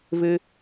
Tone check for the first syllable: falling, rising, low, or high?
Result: high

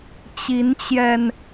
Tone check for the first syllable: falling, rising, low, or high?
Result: rising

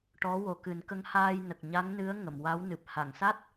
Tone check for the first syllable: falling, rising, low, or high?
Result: rising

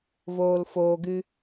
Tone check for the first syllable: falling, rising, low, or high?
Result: low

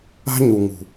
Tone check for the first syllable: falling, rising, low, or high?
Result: high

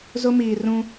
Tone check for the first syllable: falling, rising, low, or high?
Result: high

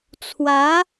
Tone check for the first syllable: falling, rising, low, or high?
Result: rising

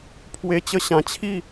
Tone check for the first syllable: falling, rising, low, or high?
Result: high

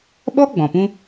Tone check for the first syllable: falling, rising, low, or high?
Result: high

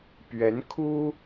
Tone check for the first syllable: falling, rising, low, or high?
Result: rising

